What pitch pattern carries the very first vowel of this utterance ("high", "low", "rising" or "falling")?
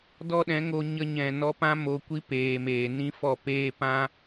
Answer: high